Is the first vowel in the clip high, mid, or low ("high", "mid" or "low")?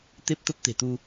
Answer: mid